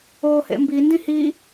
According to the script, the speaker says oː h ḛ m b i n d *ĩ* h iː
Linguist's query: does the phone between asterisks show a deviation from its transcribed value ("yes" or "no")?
no